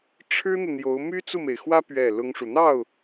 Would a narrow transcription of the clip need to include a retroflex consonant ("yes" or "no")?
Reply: yes